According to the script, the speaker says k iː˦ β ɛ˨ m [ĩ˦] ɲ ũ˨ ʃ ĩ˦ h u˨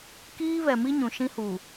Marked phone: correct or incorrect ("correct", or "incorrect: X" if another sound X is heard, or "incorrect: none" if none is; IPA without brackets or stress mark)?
incorrect: i˦